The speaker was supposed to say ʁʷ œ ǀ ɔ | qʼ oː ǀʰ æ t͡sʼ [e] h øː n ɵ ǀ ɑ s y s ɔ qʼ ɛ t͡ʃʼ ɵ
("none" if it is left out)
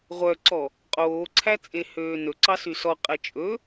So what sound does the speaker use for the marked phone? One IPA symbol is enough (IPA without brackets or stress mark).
e